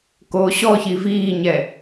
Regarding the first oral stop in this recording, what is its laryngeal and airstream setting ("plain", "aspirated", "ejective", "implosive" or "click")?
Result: plain